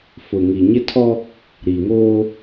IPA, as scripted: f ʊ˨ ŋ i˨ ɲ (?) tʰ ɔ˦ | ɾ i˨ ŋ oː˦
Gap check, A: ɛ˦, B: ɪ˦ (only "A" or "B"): B